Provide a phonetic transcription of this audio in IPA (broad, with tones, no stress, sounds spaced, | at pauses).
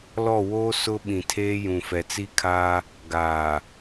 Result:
l ɔ˦˨ w oː˦ s ʊ˦ ɓ ĩ˨ tʰ eː˦ j ũ˨ f ɛ˨ t͡s i˦ kʰ aː˦ | ɡ aː˨